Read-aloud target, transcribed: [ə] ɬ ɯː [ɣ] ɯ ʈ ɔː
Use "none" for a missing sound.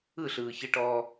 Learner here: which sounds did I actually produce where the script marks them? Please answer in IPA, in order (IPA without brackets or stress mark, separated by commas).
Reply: ɯ, ç